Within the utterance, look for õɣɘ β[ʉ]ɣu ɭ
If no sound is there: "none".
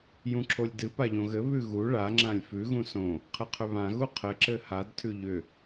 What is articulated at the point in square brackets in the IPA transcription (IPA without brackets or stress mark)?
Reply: ʉ